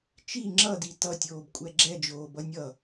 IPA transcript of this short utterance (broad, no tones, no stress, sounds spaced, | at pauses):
t͡ʃ i ŋ͡ǁ ʌ d i t ʌ tʲ oː b kʷʼ ɛ ɡ͡ǁ ɛ d͡ʒ oː b ʌ nʲ ʌ